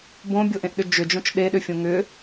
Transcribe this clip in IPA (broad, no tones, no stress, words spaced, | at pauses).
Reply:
bõbʲoʔẽʔɗʏ d͡ʒʏd͡ʒõt͡ʃ ɗeɗʏfʲõ ŋʏ